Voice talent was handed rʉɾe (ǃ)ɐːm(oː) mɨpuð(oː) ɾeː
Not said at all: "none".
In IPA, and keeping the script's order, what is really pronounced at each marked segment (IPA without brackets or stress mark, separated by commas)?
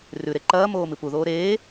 ǃ, oː, oː